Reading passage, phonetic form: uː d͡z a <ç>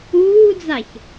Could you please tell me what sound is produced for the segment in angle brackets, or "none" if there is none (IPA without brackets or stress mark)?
ç